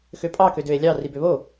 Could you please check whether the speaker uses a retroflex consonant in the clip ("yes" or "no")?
no